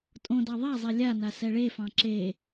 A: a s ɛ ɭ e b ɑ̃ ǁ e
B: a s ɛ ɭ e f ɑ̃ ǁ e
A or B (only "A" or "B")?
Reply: B